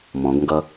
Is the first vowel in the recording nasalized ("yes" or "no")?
yes